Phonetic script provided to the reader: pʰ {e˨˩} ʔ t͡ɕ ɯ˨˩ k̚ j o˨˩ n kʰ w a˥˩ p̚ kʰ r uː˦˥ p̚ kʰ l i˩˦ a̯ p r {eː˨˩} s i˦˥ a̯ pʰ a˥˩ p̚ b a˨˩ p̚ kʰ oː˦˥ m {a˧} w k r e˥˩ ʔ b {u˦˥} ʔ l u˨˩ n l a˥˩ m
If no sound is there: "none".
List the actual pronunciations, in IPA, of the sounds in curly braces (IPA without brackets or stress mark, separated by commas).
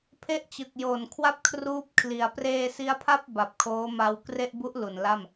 e˥˩, eː˧, a˧, u˦˥